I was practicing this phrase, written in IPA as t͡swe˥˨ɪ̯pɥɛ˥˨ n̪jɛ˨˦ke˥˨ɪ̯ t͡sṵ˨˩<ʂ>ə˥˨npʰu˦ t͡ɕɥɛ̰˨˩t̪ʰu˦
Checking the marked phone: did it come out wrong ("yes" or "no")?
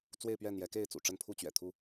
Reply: yes